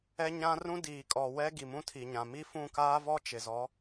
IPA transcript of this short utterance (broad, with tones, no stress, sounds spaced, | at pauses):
ɛ˦ ɲ ã˦ r ũ˦ d iː˨ kʼ ɔ˨ w ɛ˦ ɡ i˨ m ũ˦ tʰ i˨ ɲ ã˨ m i˦ f ũ˦˨ k aː˦ v ɔ˦ t͡ʃ ɪ˨ z ɔ˨˦